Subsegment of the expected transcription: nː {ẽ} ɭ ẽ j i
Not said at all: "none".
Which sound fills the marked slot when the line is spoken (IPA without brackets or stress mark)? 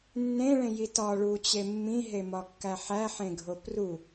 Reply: ẽ